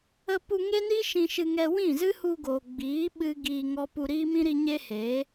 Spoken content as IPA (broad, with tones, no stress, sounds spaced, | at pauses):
ə˧ p u˧ ŋ e˦ n i˦ ʃ ĩ˧ ʃ ɨ˧ ŋ ɛ˧ w ĩ˦˨ z ɨ˦ h u˧ ɡ oː˨ ɡ͡b iː˨˦ ɓ ɨ˦ ɡ iː˧ ŋ ɔ˦ p u˧ ɾ iː˦ m ĩ˦ ɾ i˧ ɲ e˦ h e˨˦